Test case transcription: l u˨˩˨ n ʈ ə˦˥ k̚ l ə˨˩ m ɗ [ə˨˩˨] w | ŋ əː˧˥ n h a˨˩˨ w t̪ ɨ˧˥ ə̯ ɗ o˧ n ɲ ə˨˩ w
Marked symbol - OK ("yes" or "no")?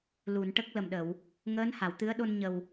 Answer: yes